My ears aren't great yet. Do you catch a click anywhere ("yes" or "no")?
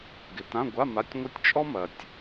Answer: no